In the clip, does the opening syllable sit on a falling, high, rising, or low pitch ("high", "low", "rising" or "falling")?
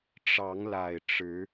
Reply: rising